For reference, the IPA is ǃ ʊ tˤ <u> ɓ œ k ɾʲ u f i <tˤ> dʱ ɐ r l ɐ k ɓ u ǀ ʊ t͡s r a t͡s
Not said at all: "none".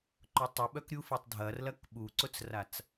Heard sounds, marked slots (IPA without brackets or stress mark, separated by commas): u, tˤ